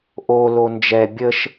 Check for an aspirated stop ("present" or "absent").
absent